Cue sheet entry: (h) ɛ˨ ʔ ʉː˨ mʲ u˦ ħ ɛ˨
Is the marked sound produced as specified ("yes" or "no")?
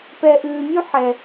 no